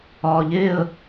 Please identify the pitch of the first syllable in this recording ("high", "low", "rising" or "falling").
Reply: low